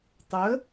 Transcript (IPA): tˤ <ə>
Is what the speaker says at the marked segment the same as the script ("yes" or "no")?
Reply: yes